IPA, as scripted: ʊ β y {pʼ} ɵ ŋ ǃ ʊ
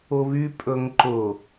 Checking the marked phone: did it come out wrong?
no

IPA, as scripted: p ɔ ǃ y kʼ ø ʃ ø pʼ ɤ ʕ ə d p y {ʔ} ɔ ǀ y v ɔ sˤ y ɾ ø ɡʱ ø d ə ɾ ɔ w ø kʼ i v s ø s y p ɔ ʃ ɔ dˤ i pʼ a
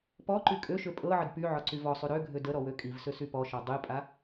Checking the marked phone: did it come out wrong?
yes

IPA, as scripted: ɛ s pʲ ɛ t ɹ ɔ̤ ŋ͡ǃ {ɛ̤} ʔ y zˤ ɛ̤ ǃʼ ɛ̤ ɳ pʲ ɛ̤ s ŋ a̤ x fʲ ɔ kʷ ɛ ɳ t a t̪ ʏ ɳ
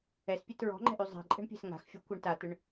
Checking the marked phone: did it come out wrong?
no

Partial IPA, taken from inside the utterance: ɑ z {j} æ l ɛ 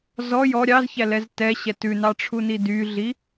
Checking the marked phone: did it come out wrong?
yes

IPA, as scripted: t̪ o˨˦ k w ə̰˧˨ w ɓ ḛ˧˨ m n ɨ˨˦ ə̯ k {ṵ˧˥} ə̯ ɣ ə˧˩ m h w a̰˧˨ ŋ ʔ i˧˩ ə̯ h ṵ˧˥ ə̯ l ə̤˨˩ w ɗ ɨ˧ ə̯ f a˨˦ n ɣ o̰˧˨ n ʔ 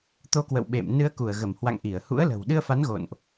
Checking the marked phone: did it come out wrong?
yes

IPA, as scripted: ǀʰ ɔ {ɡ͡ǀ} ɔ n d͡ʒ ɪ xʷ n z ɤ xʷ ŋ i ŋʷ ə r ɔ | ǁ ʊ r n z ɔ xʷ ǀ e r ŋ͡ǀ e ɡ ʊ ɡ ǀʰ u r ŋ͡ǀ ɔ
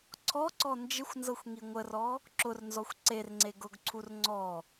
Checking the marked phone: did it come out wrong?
yes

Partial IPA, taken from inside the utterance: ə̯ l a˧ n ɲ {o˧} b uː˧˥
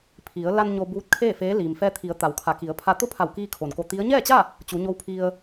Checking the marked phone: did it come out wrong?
no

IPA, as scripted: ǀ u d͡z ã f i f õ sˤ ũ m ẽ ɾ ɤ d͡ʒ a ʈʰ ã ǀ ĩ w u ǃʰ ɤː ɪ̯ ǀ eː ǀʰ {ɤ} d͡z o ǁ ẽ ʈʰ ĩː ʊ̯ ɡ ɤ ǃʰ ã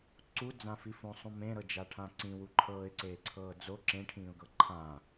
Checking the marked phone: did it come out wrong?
yes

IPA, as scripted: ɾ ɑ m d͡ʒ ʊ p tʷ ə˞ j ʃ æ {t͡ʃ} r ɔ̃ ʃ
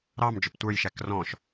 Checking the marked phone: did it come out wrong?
yes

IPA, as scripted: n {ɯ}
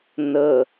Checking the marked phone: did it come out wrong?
yes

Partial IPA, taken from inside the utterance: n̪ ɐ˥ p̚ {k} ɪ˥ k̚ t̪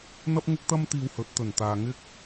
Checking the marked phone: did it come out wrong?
yes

